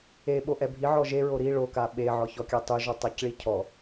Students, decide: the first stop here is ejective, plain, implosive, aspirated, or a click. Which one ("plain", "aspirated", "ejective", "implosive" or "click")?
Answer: implosive